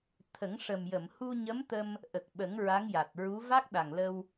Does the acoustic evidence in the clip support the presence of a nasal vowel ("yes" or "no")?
no